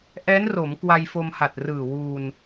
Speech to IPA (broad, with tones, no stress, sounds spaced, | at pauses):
ʔ ɛː˦˥ n r o˩˦ m k w a˧ j f o˧ m h a˨˩ t̚ r ɯː˨˩ w uː˧ n